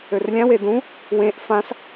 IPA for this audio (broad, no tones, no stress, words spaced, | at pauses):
ørlʲãwe dũ | wẽʔ fãs